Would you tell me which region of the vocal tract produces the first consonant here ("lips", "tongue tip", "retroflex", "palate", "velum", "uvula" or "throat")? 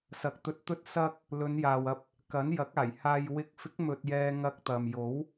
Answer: tongue tip